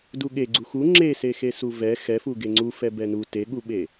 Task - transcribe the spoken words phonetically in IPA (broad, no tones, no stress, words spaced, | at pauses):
duɠe ɡ͡ǀuxu ŋ͡ǁese xesuvɛ xɛfu ɡeŋ͡ǀufɛ bɛnu teɠuɓe